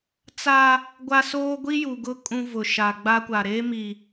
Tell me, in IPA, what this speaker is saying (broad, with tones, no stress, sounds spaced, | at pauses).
t͡s a˦ | ɡʷ a˦ s oː˦ ɡʷ i˦ j u˨ ɡ ʊ˦ kʼ ũ˦ v ʊ˨ ʃ a˨ ɡ͡b a˦ kʷ a˨ ɾ eː˦ m i˨